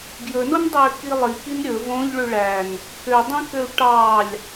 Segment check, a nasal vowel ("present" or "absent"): present